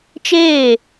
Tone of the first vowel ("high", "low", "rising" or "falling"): falling